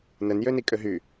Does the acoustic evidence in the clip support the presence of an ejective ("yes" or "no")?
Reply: yes